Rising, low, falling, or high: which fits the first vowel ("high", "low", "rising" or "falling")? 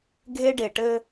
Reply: high